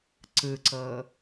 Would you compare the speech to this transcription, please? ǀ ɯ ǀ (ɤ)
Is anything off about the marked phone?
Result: no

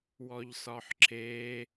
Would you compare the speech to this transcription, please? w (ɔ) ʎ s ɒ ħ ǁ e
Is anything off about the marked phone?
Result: no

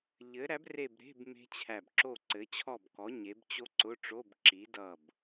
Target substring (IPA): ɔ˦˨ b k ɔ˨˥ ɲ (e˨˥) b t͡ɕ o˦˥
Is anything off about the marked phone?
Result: no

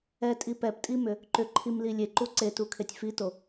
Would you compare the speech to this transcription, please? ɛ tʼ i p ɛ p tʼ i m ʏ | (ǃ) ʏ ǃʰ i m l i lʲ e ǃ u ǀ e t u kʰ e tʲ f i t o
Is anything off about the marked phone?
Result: no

